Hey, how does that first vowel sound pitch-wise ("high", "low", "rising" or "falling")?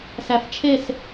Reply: low